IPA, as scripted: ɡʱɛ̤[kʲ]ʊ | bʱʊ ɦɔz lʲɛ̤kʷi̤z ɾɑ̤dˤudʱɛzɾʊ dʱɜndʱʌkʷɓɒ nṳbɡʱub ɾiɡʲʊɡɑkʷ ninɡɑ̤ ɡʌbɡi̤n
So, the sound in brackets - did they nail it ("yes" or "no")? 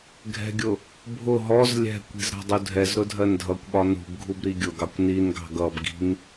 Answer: no